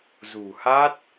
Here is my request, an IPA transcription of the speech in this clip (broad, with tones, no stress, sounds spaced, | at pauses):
z ṳ˨˩ h a˦˥ t̚